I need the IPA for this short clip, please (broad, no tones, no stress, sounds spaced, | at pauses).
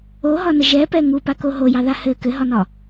o ɦ ɒ n ə ʒ ɛ p ɛ ŋ u p a k o ɦ o j ɑ ð a h ɘ k ɘ ɦ ɒ n ɒ